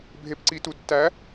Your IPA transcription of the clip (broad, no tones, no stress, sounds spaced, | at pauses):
bʱ e p ǀ i t u d tː æ